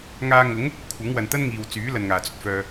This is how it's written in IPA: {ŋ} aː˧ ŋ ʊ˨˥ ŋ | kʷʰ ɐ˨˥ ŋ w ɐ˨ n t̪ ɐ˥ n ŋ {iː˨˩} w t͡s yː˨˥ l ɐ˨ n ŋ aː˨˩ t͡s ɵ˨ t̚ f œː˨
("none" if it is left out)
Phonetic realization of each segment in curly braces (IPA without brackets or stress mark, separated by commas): ŋ, iː˨